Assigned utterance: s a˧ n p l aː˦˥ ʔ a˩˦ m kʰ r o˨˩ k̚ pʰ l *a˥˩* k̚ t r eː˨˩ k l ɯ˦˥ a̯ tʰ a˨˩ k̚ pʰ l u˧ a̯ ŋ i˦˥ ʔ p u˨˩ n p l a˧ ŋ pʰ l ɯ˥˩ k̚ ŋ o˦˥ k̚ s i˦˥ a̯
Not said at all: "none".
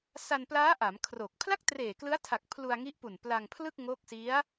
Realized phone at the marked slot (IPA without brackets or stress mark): a˥˩